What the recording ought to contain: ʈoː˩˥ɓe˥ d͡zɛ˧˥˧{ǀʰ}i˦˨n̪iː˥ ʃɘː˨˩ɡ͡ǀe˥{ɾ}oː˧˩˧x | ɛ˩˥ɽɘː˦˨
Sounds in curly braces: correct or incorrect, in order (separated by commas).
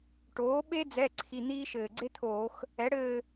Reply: correct, incorrect